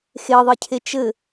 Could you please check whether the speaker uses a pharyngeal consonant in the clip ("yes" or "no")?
no